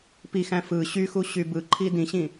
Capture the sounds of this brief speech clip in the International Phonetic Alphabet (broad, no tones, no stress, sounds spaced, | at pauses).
p i x æ̃ f ɯ ɕ y x u ɕ y b ɯ ǃʰ i d ĩ ɕ ĩ